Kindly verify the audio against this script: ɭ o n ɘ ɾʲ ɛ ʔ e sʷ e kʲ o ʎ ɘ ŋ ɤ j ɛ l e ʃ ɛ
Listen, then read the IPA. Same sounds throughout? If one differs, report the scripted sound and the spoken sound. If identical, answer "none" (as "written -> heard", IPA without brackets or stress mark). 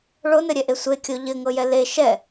none